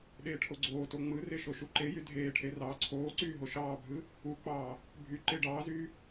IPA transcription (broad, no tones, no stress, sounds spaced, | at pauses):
ɗ eː ʈʰ o ɡ͡ǀ oː t o ŋ͡m ɯ r e ʃ o ʃ u ǃ e j y dʱ eː ʈʰ e r ɑː ǀʰ oː ǀ yː ɦ o ʃ ɑː bʱ ɯ | u k͡p ɑː | bʱ y ǃ e ɖ ɑː z yː